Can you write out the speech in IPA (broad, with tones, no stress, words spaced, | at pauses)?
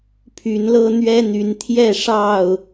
pʰy˨˦nlɤ˦ n̪ɥɛ˦n̪y˨˦n t̪ʰjɛ˥˨ʂɑ˥˨ʊ̯